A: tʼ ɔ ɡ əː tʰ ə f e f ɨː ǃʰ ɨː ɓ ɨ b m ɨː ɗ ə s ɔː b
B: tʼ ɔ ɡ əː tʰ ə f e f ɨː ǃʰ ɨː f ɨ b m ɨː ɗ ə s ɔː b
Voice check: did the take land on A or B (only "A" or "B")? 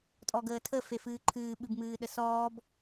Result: A